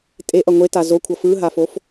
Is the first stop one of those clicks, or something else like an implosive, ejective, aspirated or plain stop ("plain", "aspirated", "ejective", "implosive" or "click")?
ejective